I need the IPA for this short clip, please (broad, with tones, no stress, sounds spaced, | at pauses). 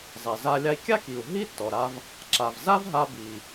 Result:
zˤ ɛ˩ z a˧ lʲ a˧ i̯ kʲ a˥ k i˩ u̯ ɦ i˥ tː ɔ˩ ɾ a˧ v | ǁ a˩ v z a˥ v ɦ a˧ b i˩